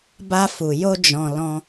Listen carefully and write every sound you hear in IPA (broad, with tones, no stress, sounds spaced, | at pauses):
b a˧ f u˨ j o˧ d͡ʒ ɔ̃˨ l ɔ̃˧